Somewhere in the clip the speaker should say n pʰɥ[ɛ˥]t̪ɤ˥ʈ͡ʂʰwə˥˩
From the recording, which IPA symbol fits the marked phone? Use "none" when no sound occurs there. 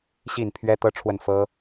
ɛ˥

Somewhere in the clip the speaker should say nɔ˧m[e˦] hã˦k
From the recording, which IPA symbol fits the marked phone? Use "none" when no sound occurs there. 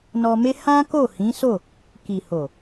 e˦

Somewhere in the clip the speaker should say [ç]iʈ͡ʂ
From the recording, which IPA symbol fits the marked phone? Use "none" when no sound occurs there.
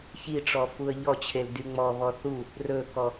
ç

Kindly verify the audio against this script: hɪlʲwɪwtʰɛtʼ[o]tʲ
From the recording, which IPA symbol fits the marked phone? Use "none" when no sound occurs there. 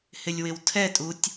u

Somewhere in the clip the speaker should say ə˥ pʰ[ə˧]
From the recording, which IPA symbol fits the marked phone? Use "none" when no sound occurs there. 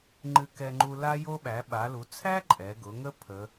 ə˩˧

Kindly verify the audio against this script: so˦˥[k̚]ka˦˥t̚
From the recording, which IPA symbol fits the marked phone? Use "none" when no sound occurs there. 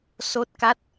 t̚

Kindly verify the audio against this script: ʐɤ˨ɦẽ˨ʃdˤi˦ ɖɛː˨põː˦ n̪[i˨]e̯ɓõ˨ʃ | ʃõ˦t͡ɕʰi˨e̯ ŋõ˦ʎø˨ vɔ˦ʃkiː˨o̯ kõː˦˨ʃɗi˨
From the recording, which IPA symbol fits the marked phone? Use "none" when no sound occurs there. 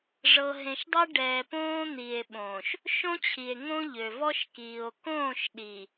i˨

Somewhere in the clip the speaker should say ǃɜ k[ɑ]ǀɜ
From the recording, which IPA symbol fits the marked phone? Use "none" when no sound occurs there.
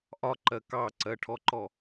ɑ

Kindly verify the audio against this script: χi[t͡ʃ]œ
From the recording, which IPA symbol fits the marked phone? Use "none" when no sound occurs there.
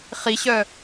ɕ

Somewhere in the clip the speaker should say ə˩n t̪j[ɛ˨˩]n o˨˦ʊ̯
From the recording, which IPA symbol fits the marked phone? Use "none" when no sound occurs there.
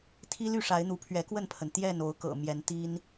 ɛ˥˨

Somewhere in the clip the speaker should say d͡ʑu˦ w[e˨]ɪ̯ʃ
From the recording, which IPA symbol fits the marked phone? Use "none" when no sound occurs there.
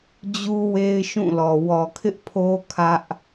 e˦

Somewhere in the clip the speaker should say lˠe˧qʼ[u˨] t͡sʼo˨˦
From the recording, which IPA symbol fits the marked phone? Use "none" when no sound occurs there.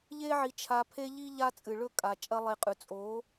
ʉ˨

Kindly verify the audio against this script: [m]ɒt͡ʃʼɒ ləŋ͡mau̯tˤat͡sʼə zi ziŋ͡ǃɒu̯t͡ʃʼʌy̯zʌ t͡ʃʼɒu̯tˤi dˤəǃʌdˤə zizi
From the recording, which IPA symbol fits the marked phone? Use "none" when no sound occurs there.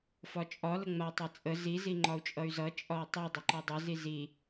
f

